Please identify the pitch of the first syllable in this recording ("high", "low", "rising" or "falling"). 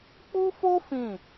high